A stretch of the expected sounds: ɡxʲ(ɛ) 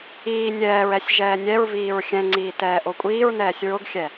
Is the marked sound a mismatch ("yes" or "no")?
no